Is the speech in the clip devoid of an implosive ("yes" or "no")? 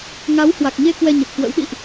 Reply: no